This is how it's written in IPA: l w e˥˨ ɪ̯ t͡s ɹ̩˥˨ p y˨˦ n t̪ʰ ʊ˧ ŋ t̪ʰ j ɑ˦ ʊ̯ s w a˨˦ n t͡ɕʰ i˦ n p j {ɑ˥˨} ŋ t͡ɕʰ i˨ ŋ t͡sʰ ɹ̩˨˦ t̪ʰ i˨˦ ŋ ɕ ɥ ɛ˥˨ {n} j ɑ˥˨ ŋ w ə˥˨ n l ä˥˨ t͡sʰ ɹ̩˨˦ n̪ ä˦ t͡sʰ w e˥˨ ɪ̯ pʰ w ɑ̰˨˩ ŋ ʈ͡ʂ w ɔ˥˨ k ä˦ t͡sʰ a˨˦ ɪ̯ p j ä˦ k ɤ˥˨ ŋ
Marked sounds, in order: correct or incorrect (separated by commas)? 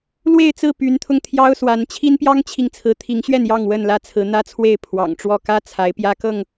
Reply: incorrect, correct